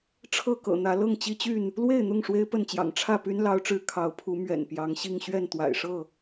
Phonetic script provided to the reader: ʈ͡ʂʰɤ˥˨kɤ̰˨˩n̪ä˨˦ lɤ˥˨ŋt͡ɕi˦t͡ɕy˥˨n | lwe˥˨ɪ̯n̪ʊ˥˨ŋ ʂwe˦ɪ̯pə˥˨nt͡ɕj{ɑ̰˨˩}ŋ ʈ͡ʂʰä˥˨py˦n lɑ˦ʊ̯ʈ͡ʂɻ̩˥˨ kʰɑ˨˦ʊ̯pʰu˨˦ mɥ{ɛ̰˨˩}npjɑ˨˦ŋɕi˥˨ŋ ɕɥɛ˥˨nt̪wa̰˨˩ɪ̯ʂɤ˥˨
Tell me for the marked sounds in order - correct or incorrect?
correct, correct

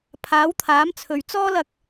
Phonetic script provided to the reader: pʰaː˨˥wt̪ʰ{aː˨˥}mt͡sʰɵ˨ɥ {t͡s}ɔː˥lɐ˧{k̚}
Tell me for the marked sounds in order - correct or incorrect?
correct, correct, correct

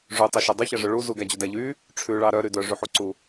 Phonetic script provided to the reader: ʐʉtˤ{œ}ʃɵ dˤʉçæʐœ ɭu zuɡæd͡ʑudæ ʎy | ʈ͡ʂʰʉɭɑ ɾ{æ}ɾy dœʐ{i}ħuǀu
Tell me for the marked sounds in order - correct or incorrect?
incorrect: ɵ, incorrect: œ, incorrect: y

